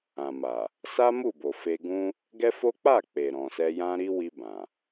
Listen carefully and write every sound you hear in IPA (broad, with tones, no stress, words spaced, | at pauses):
ã˨ma˨ | sa˦ mu˦˨bo˨fe˧ɡũ˦ | ɡɛ˦fo˦ k͡pa˦˨ k͡pe˨ɾɔ̃˨sɛ˧ jã˦ɾi˦ wi˧ bã˨